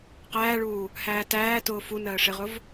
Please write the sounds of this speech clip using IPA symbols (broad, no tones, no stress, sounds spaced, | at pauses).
q æː ɭ uː | h æː t æː t ʊː f u n ɜː ʂ ɪ ʁ ʊ v